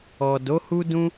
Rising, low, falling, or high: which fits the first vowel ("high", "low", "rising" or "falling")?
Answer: low